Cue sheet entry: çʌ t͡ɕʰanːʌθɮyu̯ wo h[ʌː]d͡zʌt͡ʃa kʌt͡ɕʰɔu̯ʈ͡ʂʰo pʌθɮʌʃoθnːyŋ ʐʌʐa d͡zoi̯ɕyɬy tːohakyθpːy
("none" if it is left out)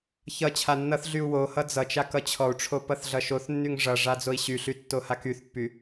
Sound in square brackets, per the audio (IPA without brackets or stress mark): ʌ